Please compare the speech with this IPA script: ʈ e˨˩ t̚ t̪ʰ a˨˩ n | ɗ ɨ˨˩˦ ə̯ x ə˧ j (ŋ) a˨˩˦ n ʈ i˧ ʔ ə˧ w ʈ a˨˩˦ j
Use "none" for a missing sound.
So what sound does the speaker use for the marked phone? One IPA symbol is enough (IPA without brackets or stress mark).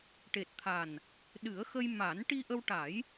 m